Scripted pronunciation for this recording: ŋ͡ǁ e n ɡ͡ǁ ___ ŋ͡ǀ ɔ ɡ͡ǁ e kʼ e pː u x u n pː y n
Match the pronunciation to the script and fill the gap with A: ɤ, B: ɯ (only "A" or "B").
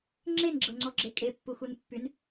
A